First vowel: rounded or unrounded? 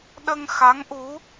unrounded